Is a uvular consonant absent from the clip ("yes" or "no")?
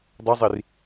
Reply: yes